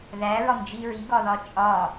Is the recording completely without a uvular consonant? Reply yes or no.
yes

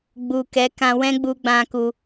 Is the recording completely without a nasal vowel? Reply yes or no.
no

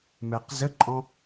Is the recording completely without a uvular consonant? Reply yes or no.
no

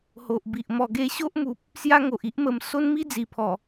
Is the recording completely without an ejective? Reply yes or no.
yes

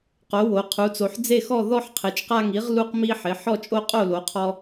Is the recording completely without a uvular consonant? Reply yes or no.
no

